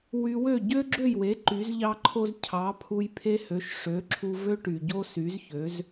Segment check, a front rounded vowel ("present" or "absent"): present